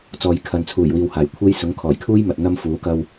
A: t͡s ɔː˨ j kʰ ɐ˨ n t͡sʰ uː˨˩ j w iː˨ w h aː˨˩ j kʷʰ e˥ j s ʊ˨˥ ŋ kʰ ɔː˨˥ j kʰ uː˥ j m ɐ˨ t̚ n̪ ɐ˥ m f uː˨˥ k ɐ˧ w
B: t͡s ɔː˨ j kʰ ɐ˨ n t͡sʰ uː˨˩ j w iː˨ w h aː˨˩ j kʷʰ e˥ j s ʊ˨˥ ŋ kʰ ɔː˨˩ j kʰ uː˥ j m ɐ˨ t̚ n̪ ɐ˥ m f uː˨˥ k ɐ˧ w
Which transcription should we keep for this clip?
B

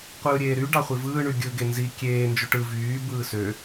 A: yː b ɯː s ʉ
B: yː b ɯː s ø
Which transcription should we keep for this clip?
B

